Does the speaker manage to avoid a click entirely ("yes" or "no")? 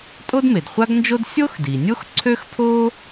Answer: no